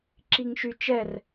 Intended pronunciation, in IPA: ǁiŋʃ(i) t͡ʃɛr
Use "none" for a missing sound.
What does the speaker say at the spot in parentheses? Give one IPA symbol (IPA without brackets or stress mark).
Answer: y